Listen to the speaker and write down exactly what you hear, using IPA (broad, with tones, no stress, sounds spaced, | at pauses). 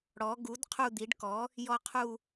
ɽ ɔ˩˥ ɡ u˩˥ d qʰ u˦˨ d̪ i˩˥ ɖ k ɔ˩˥ | j ɔ˦˨ qʰ u˦˨